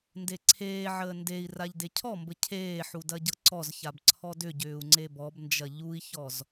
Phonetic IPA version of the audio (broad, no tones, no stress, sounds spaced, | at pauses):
n d e ǀʰ eː ʕ əː n d e i̯ r a ʎ d e cʰ ɔ m b ə cʰ eː ħ u d ɐ ɟ ɤ ǀ ɔ z ç a b ǀʰ ɔ d ʏ ɟ ʏː u̯ ŋ͡ǀ e b ɔ b n d͡ʒ ɐ ʎ u i̯ ç ɔ z